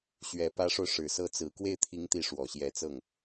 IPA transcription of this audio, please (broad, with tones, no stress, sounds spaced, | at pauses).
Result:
ɕ ɥ ɛ˨˩ p ä˧˥ ʂ o˧ ʊ̯ ʂ ɻ̩˨˩ s ɤ˥ t͡s ɹ̩˧˥ k w e˥˩ ɪ̯ t̪ʰ i˧˥ ŋ t̪ i˧˥ ʂ w ɔ˨˩ ɕ j ɛ˧˥ t͡s ɤ˥˩ ŋ